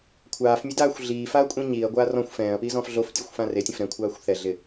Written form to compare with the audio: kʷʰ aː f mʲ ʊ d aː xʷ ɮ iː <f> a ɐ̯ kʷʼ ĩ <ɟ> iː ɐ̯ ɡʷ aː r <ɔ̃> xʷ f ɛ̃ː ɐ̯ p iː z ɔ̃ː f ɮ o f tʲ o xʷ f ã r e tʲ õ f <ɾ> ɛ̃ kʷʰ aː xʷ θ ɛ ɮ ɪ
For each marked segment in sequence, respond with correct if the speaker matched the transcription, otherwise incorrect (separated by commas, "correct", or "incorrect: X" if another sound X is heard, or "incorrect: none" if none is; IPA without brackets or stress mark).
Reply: correct, incorrect: ɲ, correct, correct